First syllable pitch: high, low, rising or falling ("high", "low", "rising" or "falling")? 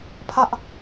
high